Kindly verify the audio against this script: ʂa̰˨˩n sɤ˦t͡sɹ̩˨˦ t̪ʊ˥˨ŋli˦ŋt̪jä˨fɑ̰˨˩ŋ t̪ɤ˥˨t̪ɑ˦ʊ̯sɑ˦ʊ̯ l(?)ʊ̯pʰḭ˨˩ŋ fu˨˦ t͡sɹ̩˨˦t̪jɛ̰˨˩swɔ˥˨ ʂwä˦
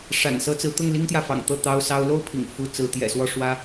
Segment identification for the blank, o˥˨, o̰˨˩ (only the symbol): o˥˨